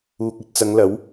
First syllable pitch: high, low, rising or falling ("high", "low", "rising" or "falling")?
low